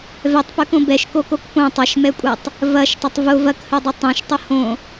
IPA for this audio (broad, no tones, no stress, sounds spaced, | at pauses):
v ɛ tˤ p ɵ k õ b ɛ ʃ k o k o k p õ tˤ ʌ ʃ m ɛ kʷʼ ɛ tˤ | v ɐ ʃ tˤ ɐ tˤ v ʊ v ɐ k h ɵ dˤ ʊ tˤ õ ʃ tˤ ʊ h õ